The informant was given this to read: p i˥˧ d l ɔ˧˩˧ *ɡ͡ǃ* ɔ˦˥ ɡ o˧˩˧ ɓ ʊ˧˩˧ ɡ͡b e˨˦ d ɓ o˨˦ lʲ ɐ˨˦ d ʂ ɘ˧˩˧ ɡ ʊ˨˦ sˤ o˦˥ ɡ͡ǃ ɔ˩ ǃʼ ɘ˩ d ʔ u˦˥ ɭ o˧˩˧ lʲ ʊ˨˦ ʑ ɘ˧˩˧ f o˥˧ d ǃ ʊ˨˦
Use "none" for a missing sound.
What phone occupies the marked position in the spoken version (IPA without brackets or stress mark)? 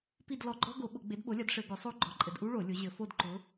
ɡ͡ǃ